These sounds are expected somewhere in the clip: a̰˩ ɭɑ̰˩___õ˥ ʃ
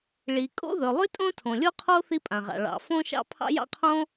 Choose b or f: f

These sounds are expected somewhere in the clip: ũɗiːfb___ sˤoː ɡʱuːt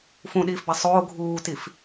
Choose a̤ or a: a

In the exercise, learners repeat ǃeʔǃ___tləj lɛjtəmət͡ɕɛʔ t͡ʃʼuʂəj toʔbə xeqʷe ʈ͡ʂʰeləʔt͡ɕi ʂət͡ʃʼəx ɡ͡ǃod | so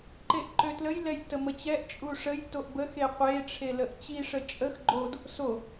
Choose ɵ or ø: ø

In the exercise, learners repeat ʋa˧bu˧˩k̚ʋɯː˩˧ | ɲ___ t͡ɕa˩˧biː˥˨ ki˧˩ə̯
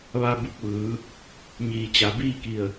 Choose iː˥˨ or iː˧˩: iː˧˩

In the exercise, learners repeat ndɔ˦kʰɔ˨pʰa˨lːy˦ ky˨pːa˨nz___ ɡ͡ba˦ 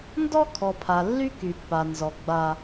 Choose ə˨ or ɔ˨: ɔ˨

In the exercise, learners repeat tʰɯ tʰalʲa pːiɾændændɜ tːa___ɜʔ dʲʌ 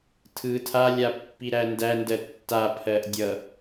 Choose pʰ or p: pʰ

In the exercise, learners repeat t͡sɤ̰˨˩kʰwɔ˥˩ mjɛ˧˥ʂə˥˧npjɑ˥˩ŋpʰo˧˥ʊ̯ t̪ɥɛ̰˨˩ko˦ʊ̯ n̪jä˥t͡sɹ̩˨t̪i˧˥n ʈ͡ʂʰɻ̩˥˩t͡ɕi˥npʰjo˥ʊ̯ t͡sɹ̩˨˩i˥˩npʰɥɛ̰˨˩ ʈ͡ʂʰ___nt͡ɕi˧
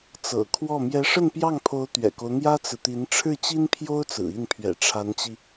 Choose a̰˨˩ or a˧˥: a˧˥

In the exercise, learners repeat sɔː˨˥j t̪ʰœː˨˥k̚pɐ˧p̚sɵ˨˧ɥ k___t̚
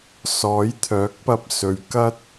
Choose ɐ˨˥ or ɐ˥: ɐ˥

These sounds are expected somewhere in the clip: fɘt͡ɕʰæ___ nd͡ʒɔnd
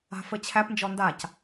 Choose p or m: p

